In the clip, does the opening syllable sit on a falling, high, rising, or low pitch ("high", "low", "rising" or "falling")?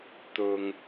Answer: low